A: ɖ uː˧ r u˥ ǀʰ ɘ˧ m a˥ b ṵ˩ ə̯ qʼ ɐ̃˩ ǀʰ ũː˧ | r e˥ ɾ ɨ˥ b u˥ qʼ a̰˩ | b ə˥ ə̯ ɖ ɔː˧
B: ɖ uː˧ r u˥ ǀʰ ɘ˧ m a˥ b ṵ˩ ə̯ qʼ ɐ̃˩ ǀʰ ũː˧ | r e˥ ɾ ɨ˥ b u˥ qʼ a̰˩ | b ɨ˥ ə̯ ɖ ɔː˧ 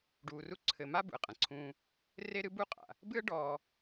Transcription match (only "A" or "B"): B